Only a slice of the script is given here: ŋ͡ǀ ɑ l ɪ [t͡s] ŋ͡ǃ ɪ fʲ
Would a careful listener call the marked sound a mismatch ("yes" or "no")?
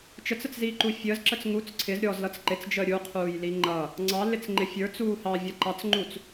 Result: no